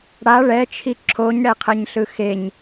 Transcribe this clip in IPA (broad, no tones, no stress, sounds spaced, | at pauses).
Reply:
ɽ a ɭ ɛ t͡ʃʰ i ǁʰ o ɲ ɽ ɛ qʰ ɛ ɲ ɬ ɯ x e ɲ